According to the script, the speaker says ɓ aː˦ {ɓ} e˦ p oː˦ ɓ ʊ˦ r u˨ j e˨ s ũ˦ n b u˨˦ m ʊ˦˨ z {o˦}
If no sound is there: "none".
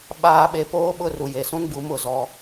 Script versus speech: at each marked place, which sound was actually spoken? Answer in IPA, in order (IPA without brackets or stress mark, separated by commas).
ɓ, ɔ˦